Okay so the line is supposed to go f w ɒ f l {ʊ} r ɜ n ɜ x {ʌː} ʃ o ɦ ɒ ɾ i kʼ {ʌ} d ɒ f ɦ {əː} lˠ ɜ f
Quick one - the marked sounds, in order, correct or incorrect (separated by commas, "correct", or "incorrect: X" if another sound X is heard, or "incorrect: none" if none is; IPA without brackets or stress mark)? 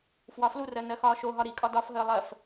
incorrect: u, incorrect: ɒː, incorrect: ɒ, correct